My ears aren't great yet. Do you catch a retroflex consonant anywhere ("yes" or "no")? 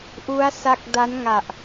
no